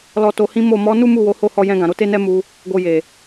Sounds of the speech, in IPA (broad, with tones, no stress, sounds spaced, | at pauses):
l ɔ˨ t o˨ h ĩ˨˦ m o˦˨ m ɔ˨˦ n u˦ m u˦˨ w o˨˦ h o˦˨ h ɔ˧ j ɛ̃˧ ɡ ã˨ ɾ o˧ t e˦ n ɛ˦ m u˧ | ɡ o˧ j e˨